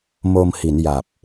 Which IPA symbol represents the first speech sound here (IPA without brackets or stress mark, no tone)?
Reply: m